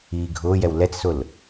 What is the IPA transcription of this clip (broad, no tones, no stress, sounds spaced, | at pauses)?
iː ɡʱ ʊː j ɛ w l ɛ t͡s s ʊ l